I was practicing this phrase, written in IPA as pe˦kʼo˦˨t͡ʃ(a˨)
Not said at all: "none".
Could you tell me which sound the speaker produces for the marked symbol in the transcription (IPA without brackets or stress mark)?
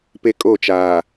aː˨